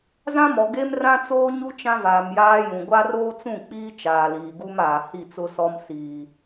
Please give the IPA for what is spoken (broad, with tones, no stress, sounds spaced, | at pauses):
z ã˦ m ɔ˨ ɡ e˦ m r ã˦ t͡s oː˦ ɲ u˦ t͡ʃ ã˦ v aː˨ m j aː˦ j ũ˨ ɡʷ a˦ r oː˦ t͡s ũ˦˨ k͡p iː˦ t͡ʃ aː˨ l iː˨ ɡ u˦ m aː˨ h i˦˨ t͡s ʊ˦ s ɔ˦ m s iː˨